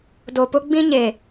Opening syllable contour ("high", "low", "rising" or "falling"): low